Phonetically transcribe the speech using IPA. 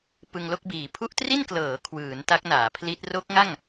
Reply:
pɯ˧ŋlo˥˩k̚biː˩˦ pʰu˦˥ʔtri˥˩nklɤː˩˦ kʰwɯː˩˦nta˦˥k̚naː˩˦pʰli˦˥t̚ ro˦˥k̚ŋa˥˩ŋ

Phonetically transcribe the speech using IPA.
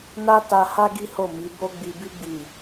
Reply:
na˦ta˧ha˦ ɡi˦ ho˦˨mi˨˦bo˦ ɡ͡bi˧bi˦ ɡ͡bi˦˨

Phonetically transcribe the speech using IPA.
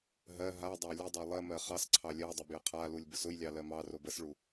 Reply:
ɦɜ ɦadˤa lʲədˤo lˠɜmɜ χɑs ǀʰɑlʲɜdˤə bjəqʰalulʲ bʊsʊjlʲɑ lɜmɑrob əsɭu

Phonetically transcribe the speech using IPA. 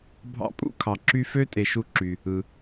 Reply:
bʱɑ̰˦pʼṵ˥kʰɑ˩ ǁy˦fø˥ tʼe˨ʃu˦ǁy˩ | ɯ˩

